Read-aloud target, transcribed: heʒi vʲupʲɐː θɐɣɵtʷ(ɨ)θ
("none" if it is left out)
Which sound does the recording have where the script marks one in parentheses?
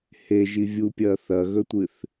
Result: ɨ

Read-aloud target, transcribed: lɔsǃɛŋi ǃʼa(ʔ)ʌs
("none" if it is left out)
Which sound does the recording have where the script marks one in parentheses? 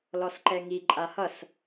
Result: h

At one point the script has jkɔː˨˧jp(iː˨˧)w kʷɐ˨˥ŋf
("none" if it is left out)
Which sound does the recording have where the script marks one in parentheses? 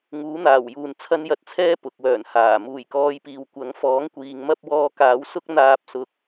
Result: iː˨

